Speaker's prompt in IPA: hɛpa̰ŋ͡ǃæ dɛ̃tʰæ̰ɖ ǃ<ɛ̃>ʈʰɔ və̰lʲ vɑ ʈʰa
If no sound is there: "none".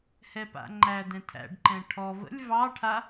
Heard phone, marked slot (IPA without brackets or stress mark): ɛ̃